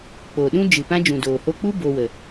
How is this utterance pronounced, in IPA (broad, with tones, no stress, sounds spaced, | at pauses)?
k͡p o˨ ɗ ũ˦ d͡ʒ ɨ˨ p ã˦ d͡ʒ ũ˨ d oː˨ h o˧ k͡p u˦ b o˧ w ə˨